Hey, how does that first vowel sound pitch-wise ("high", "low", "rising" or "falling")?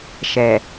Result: low